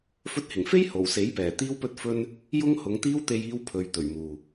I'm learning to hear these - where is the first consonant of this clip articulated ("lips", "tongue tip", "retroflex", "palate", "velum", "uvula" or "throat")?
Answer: lips